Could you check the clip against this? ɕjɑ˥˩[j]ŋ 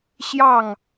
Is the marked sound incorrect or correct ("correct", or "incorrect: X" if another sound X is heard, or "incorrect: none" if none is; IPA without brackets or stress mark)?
incorrect: none